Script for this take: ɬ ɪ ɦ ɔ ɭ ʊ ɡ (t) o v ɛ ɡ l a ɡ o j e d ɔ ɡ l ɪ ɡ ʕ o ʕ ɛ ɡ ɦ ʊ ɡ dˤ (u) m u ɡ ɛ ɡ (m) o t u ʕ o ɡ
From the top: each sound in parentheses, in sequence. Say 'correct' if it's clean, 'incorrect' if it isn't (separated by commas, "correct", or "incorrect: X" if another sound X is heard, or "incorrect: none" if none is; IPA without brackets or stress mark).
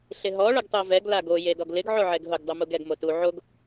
incorrect: tˤ, correct, correct